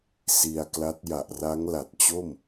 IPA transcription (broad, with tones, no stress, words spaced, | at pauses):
si˧a̯kla˦˥t̚ ja˨˩ʔra˦˥ŋla˨˩t̚t͡ɕo˥˩m